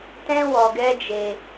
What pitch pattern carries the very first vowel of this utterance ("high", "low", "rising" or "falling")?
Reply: high